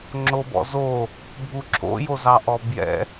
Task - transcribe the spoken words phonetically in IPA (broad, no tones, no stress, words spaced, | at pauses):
ŋ͡ǁobɔ̰zo | bʱuǁʰo̰ jozɑʔɔbjɛ̰